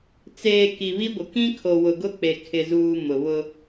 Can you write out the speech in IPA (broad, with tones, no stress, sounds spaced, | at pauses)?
t͡s eː˨ k i˨ β i˦ ɡʷ ɪ˨ k ĩ˦ kʰ o˨ w ʊ˨ ɡ ʊ˦ k͡p e˨ kʰ ɪ˨ z uː˨ m ʊ˨ β ʊ˦